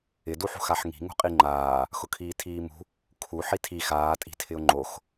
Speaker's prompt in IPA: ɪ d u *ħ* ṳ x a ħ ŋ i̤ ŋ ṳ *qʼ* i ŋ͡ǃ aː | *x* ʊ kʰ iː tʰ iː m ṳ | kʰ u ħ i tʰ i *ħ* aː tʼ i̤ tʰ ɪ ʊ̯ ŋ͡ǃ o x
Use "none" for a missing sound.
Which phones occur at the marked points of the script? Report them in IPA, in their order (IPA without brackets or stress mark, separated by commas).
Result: ħ, qʼ, x, x